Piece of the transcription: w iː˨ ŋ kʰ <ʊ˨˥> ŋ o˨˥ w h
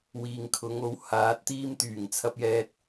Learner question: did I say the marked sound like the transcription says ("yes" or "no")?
no